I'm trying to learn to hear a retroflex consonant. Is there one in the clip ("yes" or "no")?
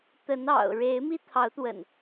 yes